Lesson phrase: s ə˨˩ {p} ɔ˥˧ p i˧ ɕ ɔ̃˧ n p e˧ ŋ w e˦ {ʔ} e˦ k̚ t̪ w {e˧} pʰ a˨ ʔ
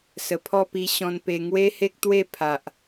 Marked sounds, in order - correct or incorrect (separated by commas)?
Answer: incorrect, incorrect, incorrect